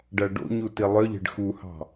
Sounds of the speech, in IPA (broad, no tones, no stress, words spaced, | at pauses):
ɖæɖo̰ɲu tilˠœʎe̤ɖ xuhɑ̤